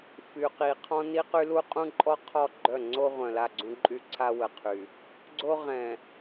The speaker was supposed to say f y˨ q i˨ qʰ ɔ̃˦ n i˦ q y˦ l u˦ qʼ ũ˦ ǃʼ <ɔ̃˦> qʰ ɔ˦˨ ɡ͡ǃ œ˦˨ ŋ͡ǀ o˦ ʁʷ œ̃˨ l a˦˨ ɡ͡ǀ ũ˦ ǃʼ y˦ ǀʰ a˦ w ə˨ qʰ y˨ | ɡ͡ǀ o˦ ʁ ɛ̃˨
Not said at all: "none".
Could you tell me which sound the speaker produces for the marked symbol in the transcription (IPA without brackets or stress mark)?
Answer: ɔ˦